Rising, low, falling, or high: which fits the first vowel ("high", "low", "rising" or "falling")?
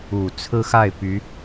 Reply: low